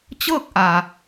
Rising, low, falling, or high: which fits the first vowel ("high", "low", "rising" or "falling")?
falling